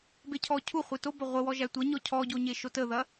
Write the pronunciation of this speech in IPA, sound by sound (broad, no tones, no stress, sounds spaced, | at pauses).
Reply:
b e cʰ ɔ cʰ u χʷ e t o b ɐ ʁʷ ə w ɔ ʒ æ tʷ ɐ ɲ ɔ cʰ ɔ ɟ o ɲ e ʃ o t ə ð ɐ